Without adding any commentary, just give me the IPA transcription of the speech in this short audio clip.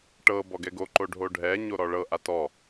ʈɤ bɔɡɛɡoǃo ɖʱoɖʱɛɲo ɾɔɭɤʔa tɔ

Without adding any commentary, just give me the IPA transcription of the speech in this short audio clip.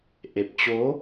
ʔe˨˩p̚t͡ɕo˨˦

